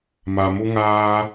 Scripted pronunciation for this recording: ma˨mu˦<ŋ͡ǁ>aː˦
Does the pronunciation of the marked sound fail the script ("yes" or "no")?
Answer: yes